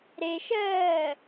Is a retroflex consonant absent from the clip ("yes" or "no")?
yes